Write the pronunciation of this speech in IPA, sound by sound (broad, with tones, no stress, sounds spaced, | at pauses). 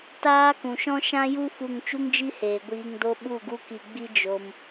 t aː˦ k ũ˨ ʃ ɔ̃˦ ʃ ã˦ j u˦ f u˦˨ ŋ t͡ʃ u˦ ŋ d͡ʒ i˦ h eː˨ ɡʷ iː˧ ŋ d o˦ ɓ u˦˨ ɡ u˦ k i˧ ɡ͡b i˦ d͡ʒ o˦ m